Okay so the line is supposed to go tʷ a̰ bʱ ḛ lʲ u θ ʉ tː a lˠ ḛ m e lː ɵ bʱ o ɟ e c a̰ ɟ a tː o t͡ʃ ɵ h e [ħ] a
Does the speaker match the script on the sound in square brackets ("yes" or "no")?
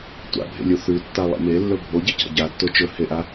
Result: no